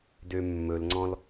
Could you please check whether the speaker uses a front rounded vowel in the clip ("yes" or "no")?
yes